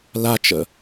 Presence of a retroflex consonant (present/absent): absent